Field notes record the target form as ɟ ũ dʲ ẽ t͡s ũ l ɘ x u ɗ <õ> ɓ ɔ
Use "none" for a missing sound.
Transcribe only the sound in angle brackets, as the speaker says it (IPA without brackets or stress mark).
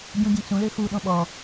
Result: õ